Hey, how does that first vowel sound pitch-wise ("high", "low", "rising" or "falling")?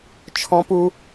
high